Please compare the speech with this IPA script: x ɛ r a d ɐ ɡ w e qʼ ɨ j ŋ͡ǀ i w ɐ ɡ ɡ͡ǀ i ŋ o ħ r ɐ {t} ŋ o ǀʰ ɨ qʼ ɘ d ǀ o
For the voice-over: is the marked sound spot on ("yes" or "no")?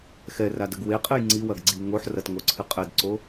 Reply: yes